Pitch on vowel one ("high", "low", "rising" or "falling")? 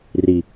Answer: low